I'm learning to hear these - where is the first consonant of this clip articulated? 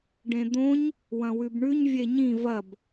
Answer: retroflex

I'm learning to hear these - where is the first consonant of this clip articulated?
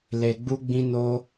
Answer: tongue tip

